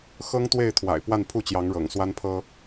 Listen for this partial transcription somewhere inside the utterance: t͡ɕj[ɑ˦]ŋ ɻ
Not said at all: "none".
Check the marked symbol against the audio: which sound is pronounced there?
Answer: ɑ˨˦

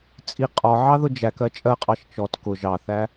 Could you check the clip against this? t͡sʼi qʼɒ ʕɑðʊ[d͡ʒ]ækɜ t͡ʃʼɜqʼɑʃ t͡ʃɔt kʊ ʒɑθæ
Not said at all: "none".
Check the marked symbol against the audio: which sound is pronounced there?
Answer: d͡ʒ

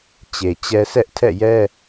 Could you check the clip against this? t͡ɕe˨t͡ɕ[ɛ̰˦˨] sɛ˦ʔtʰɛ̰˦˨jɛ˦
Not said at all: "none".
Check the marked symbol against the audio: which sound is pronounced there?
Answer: ɛ˦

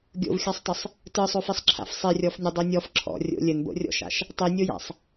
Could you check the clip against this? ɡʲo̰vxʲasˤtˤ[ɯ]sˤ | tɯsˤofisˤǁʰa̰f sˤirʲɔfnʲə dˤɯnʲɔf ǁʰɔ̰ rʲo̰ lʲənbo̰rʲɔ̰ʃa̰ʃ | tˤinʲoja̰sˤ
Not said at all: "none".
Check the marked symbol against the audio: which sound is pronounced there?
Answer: ə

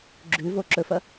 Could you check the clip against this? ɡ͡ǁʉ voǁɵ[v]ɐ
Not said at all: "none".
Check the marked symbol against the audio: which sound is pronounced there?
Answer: f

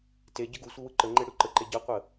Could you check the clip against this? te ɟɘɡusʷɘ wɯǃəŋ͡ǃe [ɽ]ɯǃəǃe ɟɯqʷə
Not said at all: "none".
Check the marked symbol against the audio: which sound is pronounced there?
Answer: ɽ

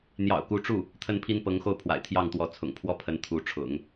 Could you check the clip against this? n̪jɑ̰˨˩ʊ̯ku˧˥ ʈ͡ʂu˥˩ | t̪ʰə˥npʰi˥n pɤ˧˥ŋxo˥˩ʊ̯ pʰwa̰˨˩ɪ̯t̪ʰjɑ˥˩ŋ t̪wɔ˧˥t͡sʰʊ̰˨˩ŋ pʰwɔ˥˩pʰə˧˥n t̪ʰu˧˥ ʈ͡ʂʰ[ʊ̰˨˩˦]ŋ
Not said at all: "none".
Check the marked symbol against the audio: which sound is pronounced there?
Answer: ʊ̰˨˩˦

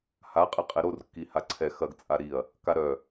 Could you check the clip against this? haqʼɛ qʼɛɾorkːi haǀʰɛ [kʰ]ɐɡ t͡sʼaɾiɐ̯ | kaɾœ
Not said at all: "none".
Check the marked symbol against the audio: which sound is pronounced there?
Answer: x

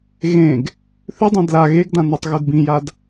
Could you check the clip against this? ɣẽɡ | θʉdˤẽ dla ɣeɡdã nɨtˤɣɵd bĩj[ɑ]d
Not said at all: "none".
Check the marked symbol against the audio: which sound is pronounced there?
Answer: a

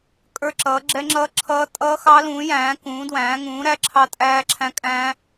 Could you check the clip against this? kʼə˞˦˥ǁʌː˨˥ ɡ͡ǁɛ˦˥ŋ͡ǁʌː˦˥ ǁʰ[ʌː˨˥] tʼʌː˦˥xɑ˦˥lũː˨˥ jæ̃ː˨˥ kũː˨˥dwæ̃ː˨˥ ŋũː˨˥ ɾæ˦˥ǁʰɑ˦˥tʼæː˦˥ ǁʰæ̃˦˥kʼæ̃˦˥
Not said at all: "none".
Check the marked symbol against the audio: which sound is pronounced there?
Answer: ʌː˦˥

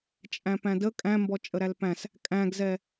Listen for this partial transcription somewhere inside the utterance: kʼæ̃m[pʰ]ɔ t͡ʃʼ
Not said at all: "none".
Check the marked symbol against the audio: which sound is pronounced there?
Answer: b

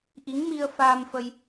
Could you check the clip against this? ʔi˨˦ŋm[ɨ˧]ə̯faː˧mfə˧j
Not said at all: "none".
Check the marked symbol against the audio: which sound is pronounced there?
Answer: i˧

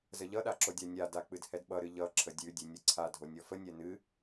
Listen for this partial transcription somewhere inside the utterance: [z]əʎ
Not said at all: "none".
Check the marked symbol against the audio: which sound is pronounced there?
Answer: z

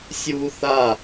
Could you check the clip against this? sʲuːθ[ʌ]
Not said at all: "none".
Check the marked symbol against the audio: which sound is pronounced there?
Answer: a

